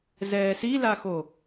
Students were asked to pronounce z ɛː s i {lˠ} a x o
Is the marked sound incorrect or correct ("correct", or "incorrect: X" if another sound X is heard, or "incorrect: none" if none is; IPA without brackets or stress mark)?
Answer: incorrect: l